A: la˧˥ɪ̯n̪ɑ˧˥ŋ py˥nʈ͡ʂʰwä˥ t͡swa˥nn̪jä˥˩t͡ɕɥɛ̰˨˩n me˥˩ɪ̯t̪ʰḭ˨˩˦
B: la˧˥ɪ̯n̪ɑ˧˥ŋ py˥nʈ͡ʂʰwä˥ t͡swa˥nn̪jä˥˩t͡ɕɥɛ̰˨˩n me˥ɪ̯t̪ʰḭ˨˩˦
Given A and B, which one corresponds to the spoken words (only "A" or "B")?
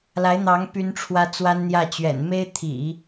B